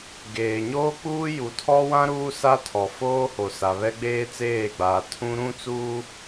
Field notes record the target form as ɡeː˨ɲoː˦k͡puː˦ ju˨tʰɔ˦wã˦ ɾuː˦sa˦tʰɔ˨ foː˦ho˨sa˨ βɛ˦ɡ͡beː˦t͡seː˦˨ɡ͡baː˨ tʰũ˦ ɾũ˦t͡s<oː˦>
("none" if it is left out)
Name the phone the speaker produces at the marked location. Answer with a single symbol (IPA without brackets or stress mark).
uː˦